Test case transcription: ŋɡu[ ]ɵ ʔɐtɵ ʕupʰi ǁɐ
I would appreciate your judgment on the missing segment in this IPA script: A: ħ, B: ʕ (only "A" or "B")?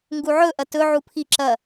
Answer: B